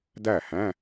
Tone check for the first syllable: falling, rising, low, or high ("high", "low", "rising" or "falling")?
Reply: falling